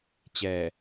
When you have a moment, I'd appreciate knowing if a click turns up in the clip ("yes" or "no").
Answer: no